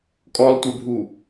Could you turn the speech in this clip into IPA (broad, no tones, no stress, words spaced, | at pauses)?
kʼɔlˠtʷɛbʱu